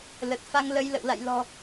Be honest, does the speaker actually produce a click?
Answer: no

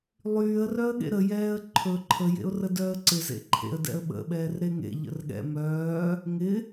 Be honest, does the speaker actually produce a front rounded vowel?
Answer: yes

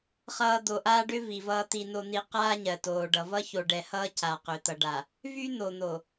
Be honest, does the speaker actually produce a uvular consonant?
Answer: yes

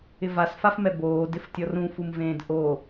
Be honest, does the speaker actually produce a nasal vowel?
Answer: yes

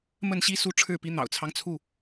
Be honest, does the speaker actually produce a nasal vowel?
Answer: no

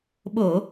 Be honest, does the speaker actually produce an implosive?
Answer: yes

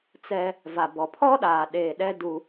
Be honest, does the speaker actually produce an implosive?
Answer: yes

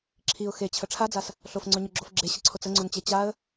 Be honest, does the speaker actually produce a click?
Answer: yes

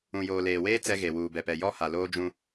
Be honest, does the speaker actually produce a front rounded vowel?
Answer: no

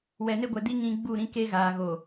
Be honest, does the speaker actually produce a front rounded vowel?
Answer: no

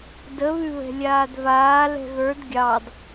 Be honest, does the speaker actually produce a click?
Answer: no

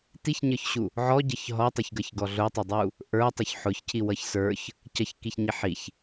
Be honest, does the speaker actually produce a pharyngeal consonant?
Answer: yes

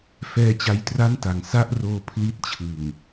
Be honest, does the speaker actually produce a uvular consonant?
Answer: no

